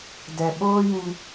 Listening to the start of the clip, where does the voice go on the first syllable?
low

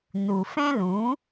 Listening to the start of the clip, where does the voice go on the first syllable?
low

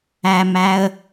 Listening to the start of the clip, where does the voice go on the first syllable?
low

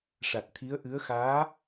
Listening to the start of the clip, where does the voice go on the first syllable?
low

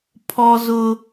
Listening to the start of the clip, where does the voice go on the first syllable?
high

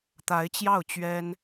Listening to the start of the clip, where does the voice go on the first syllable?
rising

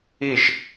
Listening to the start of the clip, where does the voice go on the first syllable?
falling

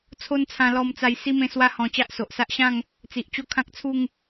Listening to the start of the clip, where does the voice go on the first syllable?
high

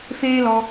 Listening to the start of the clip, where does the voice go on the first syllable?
high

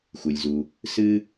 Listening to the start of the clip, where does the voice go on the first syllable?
low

